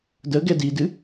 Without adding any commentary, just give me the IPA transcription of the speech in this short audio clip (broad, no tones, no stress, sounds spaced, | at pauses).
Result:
d ə ɡ ɛ d i d ɨ